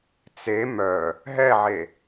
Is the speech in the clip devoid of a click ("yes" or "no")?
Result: yes